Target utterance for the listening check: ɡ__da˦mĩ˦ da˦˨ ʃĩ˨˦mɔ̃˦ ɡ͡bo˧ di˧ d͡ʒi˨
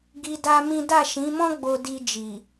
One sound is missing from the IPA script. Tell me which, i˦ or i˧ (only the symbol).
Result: i˧